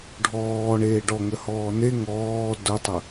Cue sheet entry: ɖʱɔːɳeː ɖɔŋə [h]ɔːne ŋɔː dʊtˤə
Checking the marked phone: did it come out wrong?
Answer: no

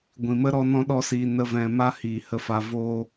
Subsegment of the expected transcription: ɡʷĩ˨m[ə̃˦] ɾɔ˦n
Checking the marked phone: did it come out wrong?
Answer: yes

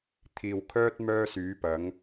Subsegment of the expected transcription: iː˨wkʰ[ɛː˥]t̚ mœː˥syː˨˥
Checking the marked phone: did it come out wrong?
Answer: yes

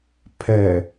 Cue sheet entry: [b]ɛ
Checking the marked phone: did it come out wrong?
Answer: yes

